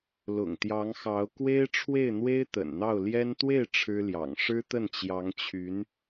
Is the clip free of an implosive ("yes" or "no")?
yes